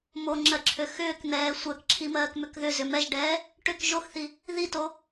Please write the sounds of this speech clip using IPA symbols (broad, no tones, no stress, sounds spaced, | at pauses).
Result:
m o ŋ͡ǁ ɜ ǁʰ ø x ʏː k n̪ ɛː sʷ ɜ k ǁʰ i m ɜː k m ʏ k ð ʏ z ʏ m ɛ ʒ ɖ ɛː | ʈ ʏ k ʒ o x θ i | ð i t o